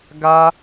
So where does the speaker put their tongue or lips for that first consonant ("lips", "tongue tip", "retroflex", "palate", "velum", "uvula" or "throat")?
velum